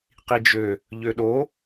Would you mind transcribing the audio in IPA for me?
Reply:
q i d͡ʒ ø | ʎ ø ɗ o

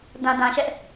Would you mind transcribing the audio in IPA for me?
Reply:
d ã˨ d ã˨ ʃ ɛ˦ ʔ

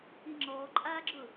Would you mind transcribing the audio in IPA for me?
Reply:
i ŋ͡ǁ ɔː ǃʼ aː ɡ͡ǁ ʊ

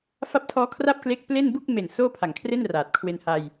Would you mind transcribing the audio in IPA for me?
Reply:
f a˦˥ p̚ tʰ ɔː˦˥ kʰ r a˥˩ p̚ k l e˦˥ k̚ p l e˥˩ n b u˥˩ k̚ m e˨˩ n s oː˥˩ pʰ a˨˩ ŋ kʰ r e˥˩ n r aː˨˩ t̚ kʰ w e˧ n h a˧ j

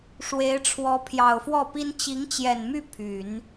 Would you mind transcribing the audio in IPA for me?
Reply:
ʂ w e˧˥ ɪ̯ ʈ͡ʂʰ w ɔ˧˥ pʰ j ɑ˨˩ ʊ̯ f w ɔ˥˩ p i˥ n t͡ɕ i˧˥ ŋ t͡ɕ j ɛ˨˩ n m y˥˩ pʰ y˨˩˦ n

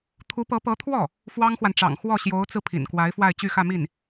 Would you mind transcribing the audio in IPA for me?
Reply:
t̪ʰ u˧˥ p ɤ˧˥ p ɤ˧˥ t̪ʰ w ɔ˥˩ | f w ɑ˥ ŋ x w a˨ n ʈ͡ʂ ɑ̰˨˩ ŋ x w ɔ˥˩ ɕ j o˧˥ ʊ̯ t͡s ɹ̩˧ pʰ ḭ˨˩ n k w a˧˥ ɪ̯ f w a˥˧ ɪ̯ t͡ɕ y˥˧ x ä˥˧ m i˥˩ n

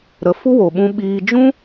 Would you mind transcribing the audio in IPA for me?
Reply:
ɾ ə˨˦ f u˦ w o˨ ɓ ũ˧ ɓ iː˧ d͡ʒ ũ˦

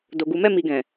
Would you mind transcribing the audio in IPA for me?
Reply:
d o˨ ɡ u˨ m ɛ˧ m i˨ ɡ ɛ̃˨

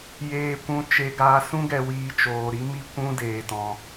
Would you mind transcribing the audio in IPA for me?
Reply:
j eː˨ kʷ ũ˧ t͡ʃ e˧ ɡ aː˧ s ũ˦ ɡ ɛ˧ w iː˧ t͡ʃ oː˧ ɾ i˦ m i˧ kʷ ũ˧ d eː˧ t ɔ̃˧

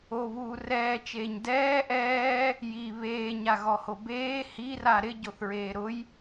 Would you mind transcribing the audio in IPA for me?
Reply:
o β uː r ɛː t͡ʃ eː ɲ d ɛː ʔ ɛː | j i β eː ɲ a ɣ ɔ h o b eː h i r a ɾ ɪ ɟ o θ ɹ eː ɾ ʊ j

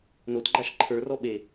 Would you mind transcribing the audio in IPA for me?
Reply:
n o t ɡ͡ǃ a ʃ ǃʰ ə˞ r ɔ ɓ e

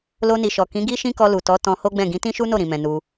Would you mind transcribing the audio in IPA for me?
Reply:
l o˧ n i˨ ʃ ɔ˨ k ĩ˨˦ ɡ i˦ ʃ ĩ˦ k ɔ˧ l u˨ t ɔ˨˦ t ɔ̃˧ h o˦ ɡ͡b ɛ̃˦˨ ɡ ĩ˨˦ t ĩ˦ ʃ u˦ n o˦˨ ɾ ĩ˨ m ɛ̃˨ n u˧

